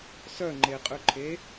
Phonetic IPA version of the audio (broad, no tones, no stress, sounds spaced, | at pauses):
s œ ŋ͡ǃ e qʼ ʉ ǃʰ e